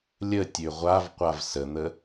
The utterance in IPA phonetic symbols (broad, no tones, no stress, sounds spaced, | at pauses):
lʲ ə tʲ ø ʁʷ a v qʷ a v s ə n̪ ə